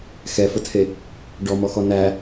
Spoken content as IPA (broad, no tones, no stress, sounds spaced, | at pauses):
x ɛ f ə tʰ e | ɖ ɔ m ɔ x ɔ n æ